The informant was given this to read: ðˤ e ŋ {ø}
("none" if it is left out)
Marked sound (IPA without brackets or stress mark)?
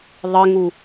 u